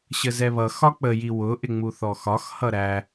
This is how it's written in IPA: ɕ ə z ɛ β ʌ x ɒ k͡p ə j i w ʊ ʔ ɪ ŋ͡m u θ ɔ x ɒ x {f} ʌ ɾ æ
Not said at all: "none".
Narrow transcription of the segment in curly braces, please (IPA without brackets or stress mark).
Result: h